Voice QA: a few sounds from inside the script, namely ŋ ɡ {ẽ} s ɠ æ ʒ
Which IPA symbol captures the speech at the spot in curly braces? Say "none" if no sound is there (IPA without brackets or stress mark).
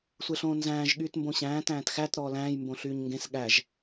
ẽ